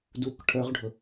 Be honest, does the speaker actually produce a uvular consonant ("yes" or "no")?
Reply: yes